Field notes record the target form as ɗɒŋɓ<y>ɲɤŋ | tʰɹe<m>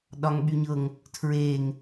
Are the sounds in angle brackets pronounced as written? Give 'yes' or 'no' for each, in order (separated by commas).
yes, no